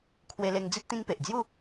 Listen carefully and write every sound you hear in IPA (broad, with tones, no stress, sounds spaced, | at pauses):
kʰ w e˧ l e˧ ŋ d͡z i˦ t̚ t̪ ĩ˦ ŋ p e˨ ʔ d͡z j u˥˧